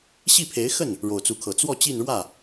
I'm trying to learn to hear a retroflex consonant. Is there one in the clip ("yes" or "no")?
yes